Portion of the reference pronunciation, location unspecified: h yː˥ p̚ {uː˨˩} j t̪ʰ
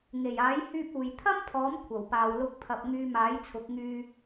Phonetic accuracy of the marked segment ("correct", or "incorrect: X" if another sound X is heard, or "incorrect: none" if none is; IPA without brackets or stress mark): incorrect: uː˨